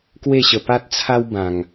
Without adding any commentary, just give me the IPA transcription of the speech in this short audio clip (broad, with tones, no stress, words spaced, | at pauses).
kwe˥˧ɕə˧ pa˦t̚ t͡sʰa˦w bã˧ŋ